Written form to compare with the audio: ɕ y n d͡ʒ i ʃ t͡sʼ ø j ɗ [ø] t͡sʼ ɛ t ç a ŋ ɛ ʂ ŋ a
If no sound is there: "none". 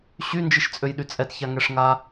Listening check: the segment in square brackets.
y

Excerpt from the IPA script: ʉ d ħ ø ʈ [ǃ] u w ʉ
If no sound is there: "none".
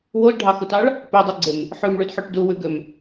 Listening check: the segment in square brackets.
d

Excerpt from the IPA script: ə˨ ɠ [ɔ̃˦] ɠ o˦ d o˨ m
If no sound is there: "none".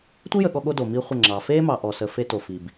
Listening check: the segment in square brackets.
ɔ˦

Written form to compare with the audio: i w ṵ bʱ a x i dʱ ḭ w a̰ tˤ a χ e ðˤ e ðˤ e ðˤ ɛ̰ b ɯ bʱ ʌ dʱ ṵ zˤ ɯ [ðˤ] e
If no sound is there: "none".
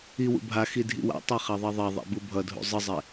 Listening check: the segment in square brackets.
zˤ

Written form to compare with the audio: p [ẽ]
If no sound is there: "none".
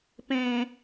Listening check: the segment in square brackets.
ẽ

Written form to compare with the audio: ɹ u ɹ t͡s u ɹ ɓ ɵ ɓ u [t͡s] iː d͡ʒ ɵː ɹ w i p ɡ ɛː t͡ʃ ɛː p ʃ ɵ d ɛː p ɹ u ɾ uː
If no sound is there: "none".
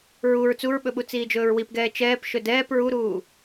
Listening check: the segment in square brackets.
t͡s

